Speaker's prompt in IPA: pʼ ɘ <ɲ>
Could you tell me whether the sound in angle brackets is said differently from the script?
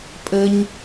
no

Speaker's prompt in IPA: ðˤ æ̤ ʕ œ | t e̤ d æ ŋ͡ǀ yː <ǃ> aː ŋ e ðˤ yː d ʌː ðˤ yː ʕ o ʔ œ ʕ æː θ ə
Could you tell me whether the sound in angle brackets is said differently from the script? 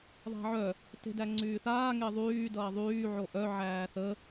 yes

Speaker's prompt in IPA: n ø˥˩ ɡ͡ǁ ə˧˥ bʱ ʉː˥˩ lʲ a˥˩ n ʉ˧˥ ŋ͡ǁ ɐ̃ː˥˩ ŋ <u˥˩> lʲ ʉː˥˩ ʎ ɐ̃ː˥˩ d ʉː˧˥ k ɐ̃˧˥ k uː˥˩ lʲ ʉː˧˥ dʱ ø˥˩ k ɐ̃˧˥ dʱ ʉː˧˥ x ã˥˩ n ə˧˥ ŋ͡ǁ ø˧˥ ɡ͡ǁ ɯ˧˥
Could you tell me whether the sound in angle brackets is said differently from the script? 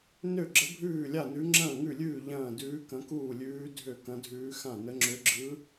yes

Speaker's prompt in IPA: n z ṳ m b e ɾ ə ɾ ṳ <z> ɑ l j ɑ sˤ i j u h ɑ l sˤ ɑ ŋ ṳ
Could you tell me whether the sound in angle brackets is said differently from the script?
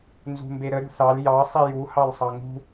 yes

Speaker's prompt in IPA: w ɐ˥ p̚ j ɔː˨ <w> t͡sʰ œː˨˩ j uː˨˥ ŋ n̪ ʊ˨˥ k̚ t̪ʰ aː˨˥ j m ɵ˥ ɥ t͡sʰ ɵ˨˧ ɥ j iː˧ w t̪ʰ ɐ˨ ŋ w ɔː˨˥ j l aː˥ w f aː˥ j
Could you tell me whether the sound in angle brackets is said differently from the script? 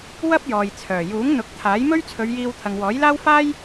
yes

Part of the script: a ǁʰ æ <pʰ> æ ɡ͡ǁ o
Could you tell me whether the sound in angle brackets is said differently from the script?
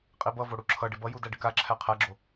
yes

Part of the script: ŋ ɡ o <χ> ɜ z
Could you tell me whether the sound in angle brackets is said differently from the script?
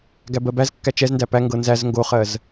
no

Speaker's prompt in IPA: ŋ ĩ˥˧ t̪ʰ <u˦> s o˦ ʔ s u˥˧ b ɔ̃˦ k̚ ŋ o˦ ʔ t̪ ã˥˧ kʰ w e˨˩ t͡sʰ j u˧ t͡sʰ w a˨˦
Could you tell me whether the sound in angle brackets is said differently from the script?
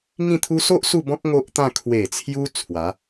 no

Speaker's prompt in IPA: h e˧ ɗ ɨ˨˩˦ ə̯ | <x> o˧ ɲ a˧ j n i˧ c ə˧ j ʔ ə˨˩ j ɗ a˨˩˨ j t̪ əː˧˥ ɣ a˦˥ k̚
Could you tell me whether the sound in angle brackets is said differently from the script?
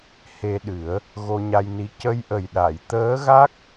yes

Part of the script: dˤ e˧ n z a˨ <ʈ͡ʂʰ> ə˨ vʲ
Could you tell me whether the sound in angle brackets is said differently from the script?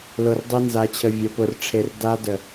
yes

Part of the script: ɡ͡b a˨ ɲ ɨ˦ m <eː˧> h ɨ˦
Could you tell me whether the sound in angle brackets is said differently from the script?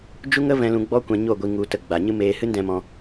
no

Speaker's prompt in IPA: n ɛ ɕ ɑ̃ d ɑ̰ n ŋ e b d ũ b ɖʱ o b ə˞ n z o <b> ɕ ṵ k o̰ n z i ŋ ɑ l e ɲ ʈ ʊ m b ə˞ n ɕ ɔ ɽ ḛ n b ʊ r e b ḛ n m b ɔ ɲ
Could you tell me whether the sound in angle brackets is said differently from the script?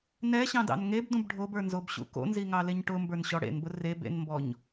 no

